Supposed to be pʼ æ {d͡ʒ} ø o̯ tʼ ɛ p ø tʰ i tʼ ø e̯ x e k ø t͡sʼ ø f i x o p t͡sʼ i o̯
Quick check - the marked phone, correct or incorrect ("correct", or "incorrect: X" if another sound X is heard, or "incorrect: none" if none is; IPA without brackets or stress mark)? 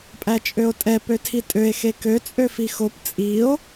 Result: incorrect: t͡ʃʼ